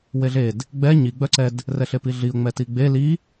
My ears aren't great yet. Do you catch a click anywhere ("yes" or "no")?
yes